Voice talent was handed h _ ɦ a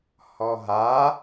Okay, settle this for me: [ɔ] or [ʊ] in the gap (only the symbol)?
ɔ